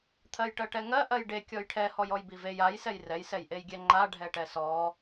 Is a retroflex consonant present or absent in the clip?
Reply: present